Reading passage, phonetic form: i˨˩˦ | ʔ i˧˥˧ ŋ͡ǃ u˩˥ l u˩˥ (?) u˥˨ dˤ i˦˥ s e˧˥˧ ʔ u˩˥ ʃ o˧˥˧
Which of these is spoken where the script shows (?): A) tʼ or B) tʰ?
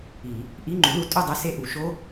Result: A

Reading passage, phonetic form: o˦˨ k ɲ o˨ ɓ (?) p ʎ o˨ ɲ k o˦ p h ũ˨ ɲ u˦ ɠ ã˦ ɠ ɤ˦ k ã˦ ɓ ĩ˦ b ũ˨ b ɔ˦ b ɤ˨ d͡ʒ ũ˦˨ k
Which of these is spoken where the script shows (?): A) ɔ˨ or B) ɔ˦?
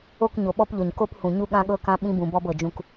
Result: B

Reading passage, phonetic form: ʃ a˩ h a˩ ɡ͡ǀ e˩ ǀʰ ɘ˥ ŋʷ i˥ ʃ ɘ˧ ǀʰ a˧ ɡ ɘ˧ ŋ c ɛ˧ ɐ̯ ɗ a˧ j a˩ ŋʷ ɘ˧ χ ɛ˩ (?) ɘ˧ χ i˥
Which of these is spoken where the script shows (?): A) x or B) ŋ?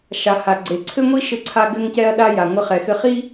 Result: A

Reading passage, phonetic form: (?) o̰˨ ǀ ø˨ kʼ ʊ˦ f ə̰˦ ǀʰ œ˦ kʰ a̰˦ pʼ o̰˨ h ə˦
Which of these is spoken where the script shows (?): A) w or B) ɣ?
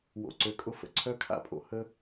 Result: A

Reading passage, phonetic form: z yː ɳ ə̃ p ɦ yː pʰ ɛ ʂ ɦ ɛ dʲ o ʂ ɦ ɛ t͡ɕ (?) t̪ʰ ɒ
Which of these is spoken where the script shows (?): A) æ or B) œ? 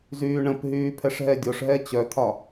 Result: B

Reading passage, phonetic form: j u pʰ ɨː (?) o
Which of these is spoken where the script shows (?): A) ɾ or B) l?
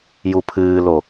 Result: B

